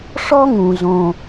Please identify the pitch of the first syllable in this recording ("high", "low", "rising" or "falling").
high